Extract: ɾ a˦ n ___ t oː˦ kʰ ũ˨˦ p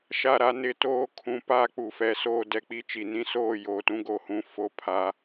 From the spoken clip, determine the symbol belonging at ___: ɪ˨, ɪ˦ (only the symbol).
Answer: ɪ˦